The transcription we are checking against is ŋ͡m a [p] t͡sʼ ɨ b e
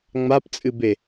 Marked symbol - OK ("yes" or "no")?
yes